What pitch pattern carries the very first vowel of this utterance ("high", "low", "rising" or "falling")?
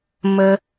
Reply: high